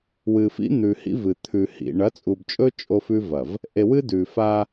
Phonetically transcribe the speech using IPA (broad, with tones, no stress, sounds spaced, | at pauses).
w ɨ˨ f ḭ˦ n̪ ʉ˨ h ḭ˦ v ɨ˨ t̪ʰ ʉ˨ h ḭ˨ ɳ ɐ˨˦ t͡sʼ u˨ b t͡ʃʼ ɵ˦ t͡ʃʼ o˦ f ʉ˦ v ɐ˨ v | ʔ e˨ w ɨ˦ d ʉ˨ f a˦